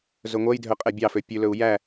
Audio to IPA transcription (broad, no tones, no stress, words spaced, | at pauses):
zɵŋʷɛjdʱœ qʼɛbʲɑfø pʲʉlɵu̯ jæ